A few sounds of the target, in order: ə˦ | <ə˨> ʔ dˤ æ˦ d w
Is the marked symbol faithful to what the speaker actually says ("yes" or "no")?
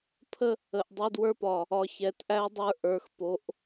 yes